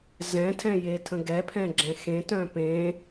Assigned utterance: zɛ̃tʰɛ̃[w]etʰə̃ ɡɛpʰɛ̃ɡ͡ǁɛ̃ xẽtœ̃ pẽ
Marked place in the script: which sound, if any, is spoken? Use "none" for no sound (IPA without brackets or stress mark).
j